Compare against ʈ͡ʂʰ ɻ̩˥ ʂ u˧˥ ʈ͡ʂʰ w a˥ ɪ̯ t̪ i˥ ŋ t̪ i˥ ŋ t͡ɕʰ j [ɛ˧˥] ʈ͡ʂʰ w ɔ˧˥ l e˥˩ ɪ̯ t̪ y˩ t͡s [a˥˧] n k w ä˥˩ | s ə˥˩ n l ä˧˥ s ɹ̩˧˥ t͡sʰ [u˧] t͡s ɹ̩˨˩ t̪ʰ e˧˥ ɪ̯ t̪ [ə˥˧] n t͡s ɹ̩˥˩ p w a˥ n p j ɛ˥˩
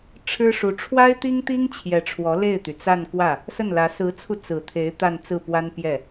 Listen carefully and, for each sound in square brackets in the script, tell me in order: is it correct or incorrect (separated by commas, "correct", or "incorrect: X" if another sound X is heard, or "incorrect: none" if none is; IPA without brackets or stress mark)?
correct, correct, correct, incorrect: a˥˧